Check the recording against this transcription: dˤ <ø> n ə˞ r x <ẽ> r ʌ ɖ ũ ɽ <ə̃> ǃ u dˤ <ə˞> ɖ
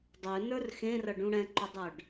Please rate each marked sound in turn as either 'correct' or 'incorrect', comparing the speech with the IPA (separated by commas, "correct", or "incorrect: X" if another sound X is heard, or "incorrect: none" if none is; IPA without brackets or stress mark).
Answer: correct, correct, incorrect: ɛ̃, correct